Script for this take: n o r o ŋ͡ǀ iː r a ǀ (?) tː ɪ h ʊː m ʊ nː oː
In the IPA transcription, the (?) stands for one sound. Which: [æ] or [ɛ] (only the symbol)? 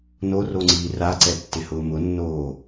ɛ